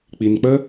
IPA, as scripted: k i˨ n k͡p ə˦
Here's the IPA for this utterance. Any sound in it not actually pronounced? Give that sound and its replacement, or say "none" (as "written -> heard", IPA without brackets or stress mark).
k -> k͡p